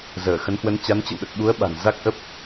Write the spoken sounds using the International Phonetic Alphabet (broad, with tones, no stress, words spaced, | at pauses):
zəː˧˩xə˨˦nhwə˨˦n t͡ɕa˨˦nt͡ɕə̰˧˨wɗə˨˩t̚ɓu˨˦ə̯ ɓa̤˨˩nza˦˥k̚ʔə˦˥p̚